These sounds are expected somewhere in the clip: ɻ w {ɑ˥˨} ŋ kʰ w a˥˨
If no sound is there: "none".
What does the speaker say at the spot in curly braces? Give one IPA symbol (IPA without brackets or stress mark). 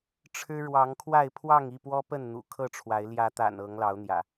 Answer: ɑ˨˦